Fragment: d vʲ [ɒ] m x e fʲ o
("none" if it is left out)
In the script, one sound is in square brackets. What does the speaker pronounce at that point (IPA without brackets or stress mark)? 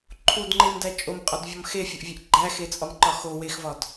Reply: ɒ